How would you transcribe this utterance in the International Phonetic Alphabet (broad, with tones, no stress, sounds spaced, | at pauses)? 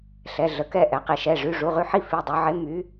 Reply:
ɬ ɛ˩˧˩ ɮ ə˩˧˩ k ɛ˥˩ ʔ ɛ˩˧ q i˩˧ ʃ ɛ˩˧˩ ʐ y˩˧˩ ʐ u˩˧˩ ʁ y˥˩ ħ i˥˩ f i˩˧˩ dˤ u˩˧ ʕ e˨˥ m y˨˥